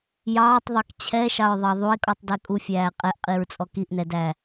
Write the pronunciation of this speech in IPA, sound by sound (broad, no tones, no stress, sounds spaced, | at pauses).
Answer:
j ɑː tˤ ðˤ ɑ k t͡ɕʰ ɛ ʃ ɑ ɹ ðˤ ɑ ðˤ u e̯ kʼ ɔ tˤ d ɛ kʼ u fʲ æː qʼ ɛ ʔ qʼ i ɹ t͡sʼ ɔ k i ʔ n ɛ d æ